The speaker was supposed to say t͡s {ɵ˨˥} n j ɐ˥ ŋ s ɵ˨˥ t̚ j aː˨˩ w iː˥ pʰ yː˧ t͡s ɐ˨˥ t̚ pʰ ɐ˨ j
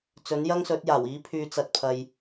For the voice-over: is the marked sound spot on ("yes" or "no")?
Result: yes